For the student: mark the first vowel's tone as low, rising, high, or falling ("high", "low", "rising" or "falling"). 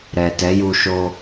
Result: low